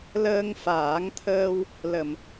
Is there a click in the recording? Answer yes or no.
no